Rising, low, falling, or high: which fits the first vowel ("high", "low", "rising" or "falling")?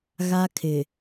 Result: high